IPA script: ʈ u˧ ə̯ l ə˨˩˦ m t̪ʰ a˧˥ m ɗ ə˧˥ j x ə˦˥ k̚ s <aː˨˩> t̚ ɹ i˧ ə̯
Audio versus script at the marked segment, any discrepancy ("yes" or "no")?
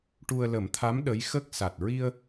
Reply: yes